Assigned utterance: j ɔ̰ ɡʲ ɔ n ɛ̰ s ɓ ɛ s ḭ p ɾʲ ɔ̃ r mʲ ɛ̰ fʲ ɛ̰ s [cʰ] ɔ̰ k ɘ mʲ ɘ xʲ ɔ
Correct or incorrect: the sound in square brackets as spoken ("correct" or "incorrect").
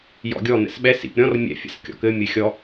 incorrect